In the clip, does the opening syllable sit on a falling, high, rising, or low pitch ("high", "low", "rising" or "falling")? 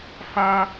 high